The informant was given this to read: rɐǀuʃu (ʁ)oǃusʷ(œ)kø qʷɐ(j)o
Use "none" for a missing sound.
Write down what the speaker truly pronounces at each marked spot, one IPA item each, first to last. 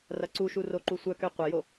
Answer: r, œ, j

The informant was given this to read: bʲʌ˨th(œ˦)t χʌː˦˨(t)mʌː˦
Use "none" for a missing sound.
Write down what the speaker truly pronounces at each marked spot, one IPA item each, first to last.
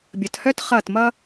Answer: œ˦, t

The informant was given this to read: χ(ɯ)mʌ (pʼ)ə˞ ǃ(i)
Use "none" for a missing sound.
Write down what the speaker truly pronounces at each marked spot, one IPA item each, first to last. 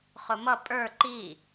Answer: ʊ, pʼ, i

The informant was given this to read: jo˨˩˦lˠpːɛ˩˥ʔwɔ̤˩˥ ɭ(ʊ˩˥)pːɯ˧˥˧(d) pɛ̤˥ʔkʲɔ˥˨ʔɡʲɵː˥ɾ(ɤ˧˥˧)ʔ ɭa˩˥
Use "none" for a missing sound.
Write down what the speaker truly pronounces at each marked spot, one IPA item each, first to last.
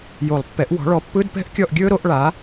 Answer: ɔ˩˥, d, o˧˥˧

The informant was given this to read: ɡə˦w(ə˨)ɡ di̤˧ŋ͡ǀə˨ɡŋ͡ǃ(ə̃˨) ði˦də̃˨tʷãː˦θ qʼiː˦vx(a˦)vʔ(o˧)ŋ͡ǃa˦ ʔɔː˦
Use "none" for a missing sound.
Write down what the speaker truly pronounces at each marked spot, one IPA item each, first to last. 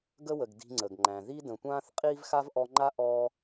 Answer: ə˨, æ̃˨, a˦, ɔ˧

